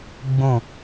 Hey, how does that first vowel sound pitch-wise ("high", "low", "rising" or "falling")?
falling